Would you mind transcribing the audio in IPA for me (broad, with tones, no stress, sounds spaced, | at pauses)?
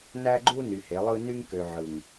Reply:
n æ˦ ɡ͡ǃ u˦ n y˨ h e˨˦ lˠ ɯ˦ n y˦ ŋ k ø˨ ʕ ɯ˨ ŋ